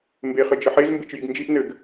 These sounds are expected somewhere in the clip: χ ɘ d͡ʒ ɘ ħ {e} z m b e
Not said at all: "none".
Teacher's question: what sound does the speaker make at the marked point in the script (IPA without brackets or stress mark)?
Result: e